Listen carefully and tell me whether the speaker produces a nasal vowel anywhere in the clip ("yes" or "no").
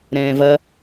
yes